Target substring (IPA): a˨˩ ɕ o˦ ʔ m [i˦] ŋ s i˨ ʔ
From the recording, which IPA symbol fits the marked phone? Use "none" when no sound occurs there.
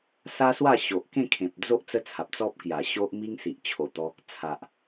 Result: i˦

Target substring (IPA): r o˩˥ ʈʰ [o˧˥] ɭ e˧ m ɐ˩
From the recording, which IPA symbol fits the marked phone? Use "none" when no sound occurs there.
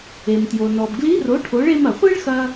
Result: o˩˥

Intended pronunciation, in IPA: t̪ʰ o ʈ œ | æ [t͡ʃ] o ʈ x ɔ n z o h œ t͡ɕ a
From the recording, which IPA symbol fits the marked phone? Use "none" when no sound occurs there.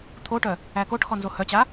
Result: k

